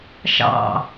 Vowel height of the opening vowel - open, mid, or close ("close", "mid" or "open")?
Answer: open